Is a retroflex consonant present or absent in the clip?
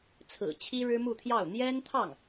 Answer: present